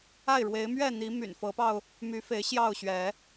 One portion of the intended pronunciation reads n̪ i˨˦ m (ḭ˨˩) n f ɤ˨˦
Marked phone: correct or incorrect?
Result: incorrect: y̰˨˩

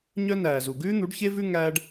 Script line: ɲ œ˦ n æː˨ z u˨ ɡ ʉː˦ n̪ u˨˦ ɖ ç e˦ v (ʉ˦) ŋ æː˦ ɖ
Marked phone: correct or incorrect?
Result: correct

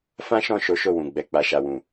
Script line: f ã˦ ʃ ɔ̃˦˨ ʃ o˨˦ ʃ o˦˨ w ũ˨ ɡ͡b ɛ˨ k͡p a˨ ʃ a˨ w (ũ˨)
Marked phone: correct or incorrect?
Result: correct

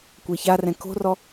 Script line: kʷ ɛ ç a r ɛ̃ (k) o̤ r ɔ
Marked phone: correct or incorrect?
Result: correct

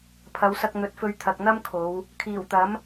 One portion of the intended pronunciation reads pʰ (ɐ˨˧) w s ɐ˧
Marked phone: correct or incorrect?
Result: correct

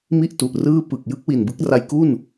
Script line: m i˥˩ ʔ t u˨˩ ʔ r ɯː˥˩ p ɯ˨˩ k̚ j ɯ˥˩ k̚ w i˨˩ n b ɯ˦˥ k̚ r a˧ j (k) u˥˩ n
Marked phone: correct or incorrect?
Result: correct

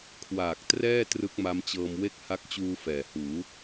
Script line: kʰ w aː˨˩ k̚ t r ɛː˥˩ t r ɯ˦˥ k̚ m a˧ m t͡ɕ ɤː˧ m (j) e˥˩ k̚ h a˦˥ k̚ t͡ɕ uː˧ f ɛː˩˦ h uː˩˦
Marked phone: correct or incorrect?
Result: incorrect: w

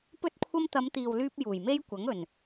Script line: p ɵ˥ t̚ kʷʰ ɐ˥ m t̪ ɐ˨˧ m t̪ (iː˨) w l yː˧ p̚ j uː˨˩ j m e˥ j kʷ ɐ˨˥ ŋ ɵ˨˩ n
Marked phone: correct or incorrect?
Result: correct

